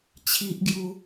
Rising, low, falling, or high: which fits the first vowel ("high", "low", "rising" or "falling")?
high